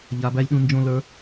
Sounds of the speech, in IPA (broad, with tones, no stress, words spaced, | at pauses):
ʎa˧bæ˦lʲɗũ˦ nd͡ʒõ˦lə˞˦